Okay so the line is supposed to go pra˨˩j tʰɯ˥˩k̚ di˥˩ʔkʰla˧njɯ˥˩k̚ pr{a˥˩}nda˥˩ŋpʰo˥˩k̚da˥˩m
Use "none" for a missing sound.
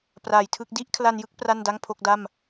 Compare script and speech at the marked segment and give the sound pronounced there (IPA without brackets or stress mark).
a˥˩